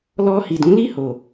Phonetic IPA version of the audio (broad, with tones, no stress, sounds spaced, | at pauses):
l ɔ˧ h i˨ d ũ˨˦ l i˦˨ h o˨